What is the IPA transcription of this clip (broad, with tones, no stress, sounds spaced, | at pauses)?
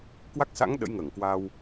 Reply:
k w a˦˥ k̚ s a̰˧˥ ŋ ɗ ə̰˧˥ j ŋ əː˧˩ ŋ k w a˧ w